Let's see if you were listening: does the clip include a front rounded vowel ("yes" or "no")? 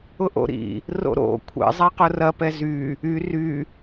yes